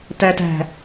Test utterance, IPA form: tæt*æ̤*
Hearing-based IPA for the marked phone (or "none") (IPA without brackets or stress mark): æ̤